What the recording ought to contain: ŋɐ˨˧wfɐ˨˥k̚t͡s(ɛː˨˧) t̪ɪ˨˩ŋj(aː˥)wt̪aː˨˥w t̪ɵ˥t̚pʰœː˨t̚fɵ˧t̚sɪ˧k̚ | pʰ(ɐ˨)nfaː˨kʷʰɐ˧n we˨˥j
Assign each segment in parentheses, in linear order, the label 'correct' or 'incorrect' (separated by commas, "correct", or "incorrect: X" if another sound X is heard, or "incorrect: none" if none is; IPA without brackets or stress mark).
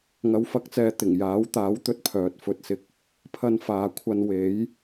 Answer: incorrect: ɛː˨, incorrect: aː˨˥, incorrect: ɐ˧